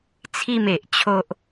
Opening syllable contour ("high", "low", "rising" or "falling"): falling